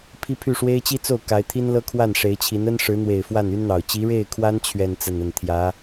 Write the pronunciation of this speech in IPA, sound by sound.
pʰi˥pʰy˥˩ ʂwe˥ɪ̯t͡ɕi˥t͡so˥˩ʊ̯ ka˧˥ɪ̯t̪ʰi˥nlɤ˥ kʰwa˥˩n ʂe˧˥ɪ̯t͡ɕʰi˧˥n ə˥nʂɻ̩˧˥n̪we˨˩ɪ̯ fwa˥˩ny˥nn̪ɑ˨˩ʊ̯ t͡ɕi˧˥ɻe˥˩ɪ̯kʰwa˥n t͡ɕʰɥɛ˥˧n t͡sə˥˧nə˥˩n t̪ʰjä˧˥

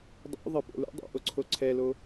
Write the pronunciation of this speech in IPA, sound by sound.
dˤo̰ ðˤɘpo̰lṵdˤo̰ ʔoǀʰoǀʰɛlo

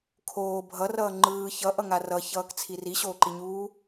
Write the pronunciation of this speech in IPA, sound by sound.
kʰoː bʱʌrʌː ŋ͡ǃɯː çʌʔʌŋa rʌçʌːkt͡sʰi riɕoːǃiɲuː

